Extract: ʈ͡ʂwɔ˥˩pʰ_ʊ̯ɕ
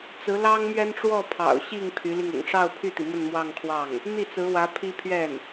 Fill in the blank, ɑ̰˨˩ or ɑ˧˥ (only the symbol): ɑ̰˨˩